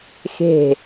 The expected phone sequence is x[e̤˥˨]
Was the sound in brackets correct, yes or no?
yes